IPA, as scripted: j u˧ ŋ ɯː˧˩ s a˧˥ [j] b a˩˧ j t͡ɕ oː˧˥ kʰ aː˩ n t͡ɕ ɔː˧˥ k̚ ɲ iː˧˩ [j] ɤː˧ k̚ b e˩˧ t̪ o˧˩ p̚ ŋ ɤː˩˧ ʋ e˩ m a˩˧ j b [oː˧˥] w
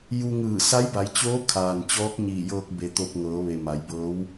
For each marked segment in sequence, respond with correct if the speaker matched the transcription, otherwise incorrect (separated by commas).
correct, correct, incorrect